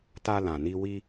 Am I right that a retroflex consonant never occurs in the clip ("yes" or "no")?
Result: yes